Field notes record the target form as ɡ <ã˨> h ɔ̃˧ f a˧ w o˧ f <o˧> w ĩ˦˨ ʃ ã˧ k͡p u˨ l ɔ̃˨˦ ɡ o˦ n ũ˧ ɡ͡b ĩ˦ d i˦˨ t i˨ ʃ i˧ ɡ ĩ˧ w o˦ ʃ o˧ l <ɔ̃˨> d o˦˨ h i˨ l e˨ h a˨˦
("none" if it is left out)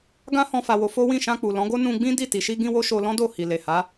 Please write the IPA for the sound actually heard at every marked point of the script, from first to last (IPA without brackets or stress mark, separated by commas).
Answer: ã˦, o˦, ɔ̃˦